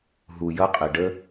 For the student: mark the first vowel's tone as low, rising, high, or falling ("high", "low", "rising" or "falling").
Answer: low